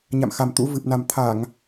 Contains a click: no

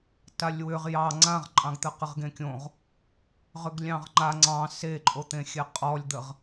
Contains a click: yes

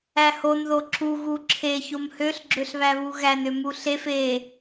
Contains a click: yes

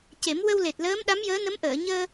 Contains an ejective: no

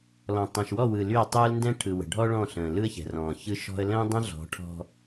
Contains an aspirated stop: yes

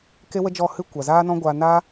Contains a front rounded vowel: no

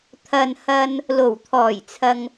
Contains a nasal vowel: no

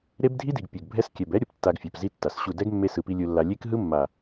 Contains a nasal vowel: no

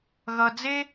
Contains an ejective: no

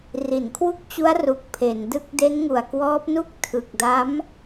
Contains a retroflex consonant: no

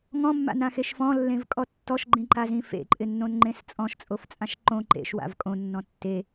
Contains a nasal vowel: yes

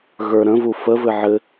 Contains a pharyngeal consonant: yes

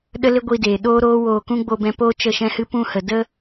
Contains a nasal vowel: yes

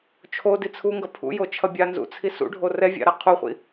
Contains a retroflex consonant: yes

